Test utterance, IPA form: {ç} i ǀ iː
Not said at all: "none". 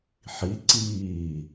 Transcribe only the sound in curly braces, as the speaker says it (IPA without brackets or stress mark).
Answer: ħ